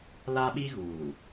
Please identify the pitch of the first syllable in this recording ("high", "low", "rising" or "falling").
high